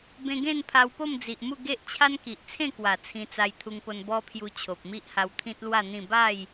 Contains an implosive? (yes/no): no